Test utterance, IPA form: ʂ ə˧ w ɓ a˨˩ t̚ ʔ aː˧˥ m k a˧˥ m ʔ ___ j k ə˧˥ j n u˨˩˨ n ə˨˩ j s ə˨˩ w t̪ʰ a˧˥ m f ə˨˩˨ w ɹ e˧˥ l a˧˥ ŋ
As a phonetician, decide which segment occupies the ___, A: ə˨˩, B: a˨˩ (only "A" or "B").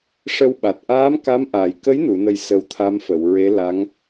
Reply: B